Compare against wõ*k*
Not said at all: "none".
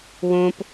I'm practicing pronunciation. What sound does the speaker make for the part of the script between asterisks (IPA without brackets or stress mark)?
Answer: p